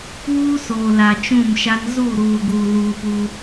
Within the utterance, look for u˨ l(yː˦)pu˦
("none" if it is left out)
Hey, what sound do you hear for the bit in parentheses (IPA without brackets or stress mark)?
uː˦